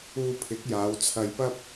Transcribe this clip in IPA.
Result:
uː˧ pʰ ɪ˨˥ k̚ j aː˨˧ w t͡sʰ ɐ˧ j p ɐ˥ p̚

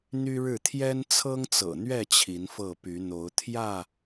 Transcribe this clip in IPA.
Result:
n̪ y˦ ɻ ɻ̩˥˨ t̪ʰ j ɛ˦ n t͡sʰ ɤ˦ ŋ t͡s ɤ̰˨˩ n̪ ɥ ɛ˥˨ t͡ɕʰ i˨˦ n f ɤ˥˨ p y˨˦ n̪ o˨˦ ʊ̯ t̪ʰ j ä˥˨

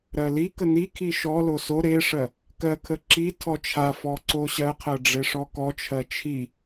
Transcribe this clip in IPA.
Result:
ɾ ɜ l i k ə n i kʰ i ʃ ɔ l o s o ɾ e ʂ ɜ | k ɜ kʰ ə ǁ i tʰ ɔ t͡ʃʰ a f ɔ ǀ o ɕ ɜ qʰ ɜ ɖ͡ʐ e ʂ ɔ k ɔ t͡ʃʰ ɜ t͡ʃʰ i

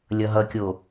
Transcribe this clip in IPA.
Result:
lʲ ʌ ɦ ʌ kʲ o

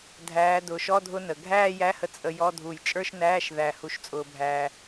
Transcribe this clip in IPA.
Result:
dʱ æː˩˧ d ʊː˩ ʃ ɔ˧˥˧ dʱ ʊ˧ n ə˩ ɡʱ æː˥˧ j æ˧˥˧ h ə˧ t͡sʼ ə˧ j ɔ˧˥˧ dʱ u˧˩ j t͡ʃʼ ə˞˥˧ ʃ n æː˧˥˧ ʃ ð æ˧˩ h u˧ ʃ t͡sʼ ʊː˧ bʱ æː˧

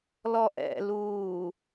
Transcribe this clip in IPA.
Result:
l ɔ ʔ ɛ̰ l uː

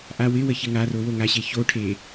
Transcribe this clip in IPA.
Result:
ʔ a w ɪ w ə ç ɪ ŋ a r o w o ŋ a ɕ e ç o ʈʰ e

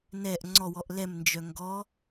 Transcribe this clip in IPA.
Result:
n ɛ ʔ ŋ͡ǀ ɔ w ɔ ʔ l ɛ m n d͡ʒ œ ŋ ɡ ɔ

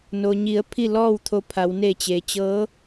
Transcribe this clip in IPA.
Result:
n o˩ ɲ i˩˧ ə̯ pʰ i˥˨ l ɔː˥˨ w t̪ʰ o˧ pʰ a˩˧ w n e˧˩ t͡ɕ e˩ t͡ɕ ɤː˧˥

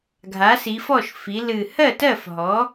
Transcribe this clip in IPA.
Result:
ɡʱ a˩˥ s i˩˧ f ɔ˥˩ ʃ f i˩˧ l ɨ˨˩ h ɜ˥˩ t ɜ˥˩ f ɦ ɔ˩˥

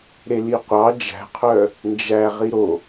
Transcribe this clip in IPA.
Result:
ɾ e l i qʷ ɑ d͡ʒ æ̤ qʰ œ | n d͡ʒ æ ʁ i ɾ o

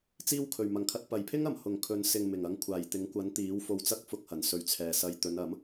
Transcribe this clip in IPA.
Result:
t͡s iː˥ w kʰ ɵ˨˩ ɥ m ɐ˨˩ ŋ kʰ ɐ˨ t̚ p ɐ˨˩ j pʰ ɪ˥ ŋ ɐ˨˩ m h ʊ˨ ŋ kʰ ɵ˨˧ n s ɪ˨ ŋ m ɪ˨˩ ŋ ɐ˨˧ ŋ kʷʰ aː˨˩ j t̪ ɪ˨˥ ŋ kʷ ɐ˨˥ n t̪ iː˨˥ w f o˧ w t͡s ɐ˥ k̚ f ʊ˧ k̚ h ɐ˨˩ n s ɵ˨˧ ɥ t͡sʰ ɛː˨ s ɐ˧ j t̪ ɵ˨˧ n ɐ˨˥ m

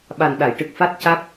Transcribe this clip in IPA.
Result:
ɓ a˨˩ n ɗ a˨˩˨ j ʈ ɨ˨˩ k̚ f a˦˥ t̚ c a˦˥ k̚

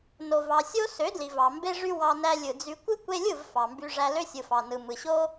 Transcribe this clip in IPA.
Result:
n o˨ v ɑ˨ sʲ o˦ s ø˨˦ d l i˨ v ɑ˨ m b e˦ ʐ y˦ w ɑ˧ n æ˧ lʲ ɯ˨ d͡z y˧ kʷ ɯ˦ kʷ e˧ lʲ ɯ˦˨ v f ɑ˨ m b y˧ ʐ æ˧ l ø˦ sʲ ɯ˨ f ɑ˨ n ɯ˨ m ɯ˨ ɕ o˦

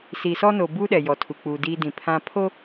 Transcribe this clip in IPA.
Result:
s iː˨ s ɔ˦ n o˨ b uː˦ ɗ ɛ˨ j ɔ˨ tʰ u˨ k͡p uː˨ d iː˦ d ĩ˨ pʰ ã˨ pʰ o˦

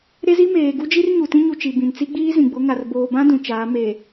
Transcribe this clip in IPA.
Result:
ɾ e˦ z i˦ m eː˨ ɡ u˦ d͡ʒ i˦ r ɲ u˨ t ĩ˦ ɲ u˨ t͡ʃ i˨ b ĩ˨ n t͡s i˦ ɡ͡b iː˦ z ĩ˨ ɡ͡b ʊ˨˦ ŋ a˨ r b oː˨ b ã˦ d ũ˨ t͡ʃ aː˨˦ m e˨

